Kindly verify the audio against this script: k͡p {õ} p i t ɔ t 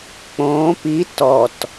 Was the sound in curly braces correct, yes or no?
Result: yes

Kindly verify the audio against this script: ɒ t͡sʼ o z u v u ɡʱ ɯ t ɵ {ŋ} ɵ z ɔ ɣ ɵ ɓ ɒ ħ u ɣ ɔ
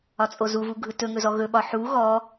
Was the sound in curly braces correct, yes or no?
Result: yes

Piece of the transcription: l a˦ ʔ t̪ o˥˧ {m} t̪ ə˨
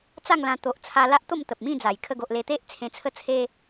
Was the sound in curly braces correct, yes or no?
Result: yes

